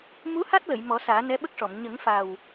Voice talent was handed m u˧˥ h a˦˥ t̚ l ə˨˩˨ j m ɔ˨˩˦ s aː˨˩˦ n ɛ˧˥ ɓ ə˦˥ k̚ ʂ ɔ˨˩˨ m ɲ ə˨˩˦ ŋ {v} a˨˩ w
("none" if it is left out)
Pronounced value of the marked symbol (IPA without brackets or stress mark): f